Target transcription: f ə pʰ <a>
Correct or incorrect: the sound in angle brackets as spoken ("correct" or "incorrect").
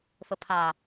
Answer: correct